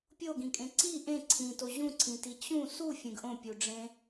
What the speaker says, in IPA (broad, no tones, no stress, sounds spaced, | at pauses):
pʲ o ɡ ĩ kʼ ẽ ǀ i ʔ ẽ ǀʰ ĩ t o ʑ ũ ǀʰ ĩ t i t͡ɕ ũ s u fʲ ẽ ɡ ʔ õ pʲ u ɖ͡ʐ ẽ